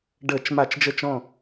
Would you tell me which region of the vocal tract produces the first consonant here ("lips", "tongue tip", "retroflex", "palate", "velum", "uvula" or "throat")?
retroflex